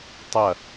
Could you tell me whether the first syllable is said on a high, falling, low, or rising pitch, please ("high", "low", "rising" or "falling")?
falling